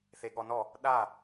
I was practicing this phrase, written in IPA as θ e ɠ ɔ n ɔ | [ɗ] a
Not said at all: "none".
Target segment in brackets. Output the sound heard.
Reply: ɗ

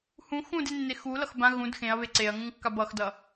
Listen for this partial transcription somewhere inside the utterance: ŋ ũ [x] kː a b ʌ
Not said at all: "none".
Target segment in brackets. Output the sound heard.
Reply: ŋ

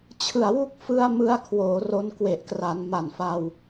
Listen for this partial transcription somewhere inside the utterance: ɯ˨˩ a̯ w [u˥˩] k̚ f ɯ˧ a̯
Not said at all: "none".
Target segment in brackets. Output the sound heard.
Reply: u˥˩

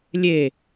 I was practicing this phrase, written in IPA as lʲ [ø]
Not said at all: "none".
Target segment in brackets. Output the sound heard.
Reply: e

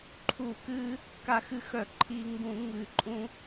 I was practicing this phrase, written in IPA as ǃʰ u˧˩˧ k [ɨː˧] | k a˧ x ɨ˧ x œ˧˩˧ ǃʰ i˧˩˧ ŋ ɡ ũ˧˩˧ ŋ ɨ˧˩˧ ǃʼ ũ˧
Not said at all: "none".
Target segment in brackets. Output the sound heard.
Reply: ɨː˧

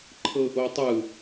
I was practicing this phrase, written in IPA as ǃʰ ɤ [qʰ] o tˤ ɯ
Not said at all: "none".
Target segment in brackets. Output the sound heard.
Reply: ʔ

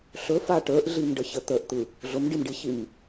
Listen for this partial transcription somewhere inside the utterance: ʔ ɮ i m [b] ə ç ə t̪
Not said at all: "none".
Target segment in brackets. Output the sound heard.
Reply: ɖ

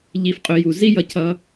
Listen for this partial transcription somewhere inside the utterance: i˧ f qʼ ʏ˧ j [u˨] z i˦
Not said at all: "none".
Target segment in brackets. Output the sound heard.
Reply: u˨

